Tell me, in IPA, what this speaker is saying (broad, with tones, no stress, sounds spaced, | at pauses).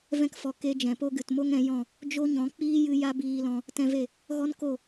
v ɛ̃˧ k f ɔ˨ k e˦ d͡ʒ ɛ̃˨ p o˦ ɡ ɨ˨ t m o˦ ŋ ɛ̃˨˦ j ɔ̃˦˨ | d͡ʒ o˦ ɲ ɔ̃˨˦ k͡p iː˦ j ɨ˧ j a˦ b iː˧ l ɔ̃˧ | t ɛ̃˧ v e˦˨ | ɣ ɔ˦ n k o˦˨